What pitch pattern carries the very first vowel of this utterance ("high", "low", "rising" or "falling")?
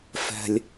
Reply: high